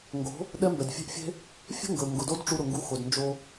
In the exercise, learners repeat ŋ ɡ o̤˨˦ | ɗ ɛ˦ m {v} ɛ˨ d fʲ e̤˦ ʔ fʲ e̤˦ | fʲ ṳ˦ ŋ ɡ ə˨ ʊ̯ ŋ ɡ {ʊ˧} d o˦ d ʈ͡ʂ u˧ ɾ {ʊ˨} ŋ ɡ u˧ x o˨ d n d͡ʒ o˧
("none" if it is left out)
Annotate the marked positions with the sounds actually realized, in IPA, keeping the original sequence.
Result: b, ʊ˨, ʊ˨

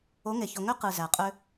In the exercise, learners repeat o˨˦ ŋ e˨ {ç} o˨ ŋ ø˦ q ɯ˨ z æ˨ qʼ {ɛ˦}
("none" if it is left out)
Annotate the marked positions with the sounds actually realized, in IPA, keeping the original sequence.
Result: ç, ø˦

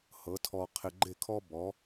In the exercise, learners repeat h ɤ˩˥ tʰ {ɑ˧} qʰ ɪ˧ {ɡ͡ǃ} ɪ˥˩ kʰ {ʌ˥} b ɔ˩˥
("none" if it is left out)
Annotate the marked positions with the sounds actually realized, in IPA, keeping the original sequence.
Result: ɔ˧, ɡ͡ǃ, ɔ˥

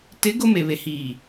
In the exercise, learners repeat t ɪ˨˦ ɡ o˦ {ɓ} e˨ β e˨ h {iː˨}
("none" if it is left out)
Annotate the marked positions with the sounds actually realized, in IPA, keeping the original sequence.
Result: m, iː˨

